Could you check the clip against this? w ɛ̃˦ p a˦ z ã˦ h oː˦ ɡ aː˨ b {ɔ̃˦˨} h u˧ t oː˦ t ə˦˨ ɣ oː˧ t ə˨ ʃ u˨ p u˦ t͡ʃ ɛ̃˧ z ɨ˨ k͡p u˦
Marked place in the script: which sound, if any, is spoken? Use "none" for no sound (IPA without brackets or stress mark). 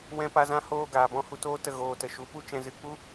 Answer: ɔ̃˦˨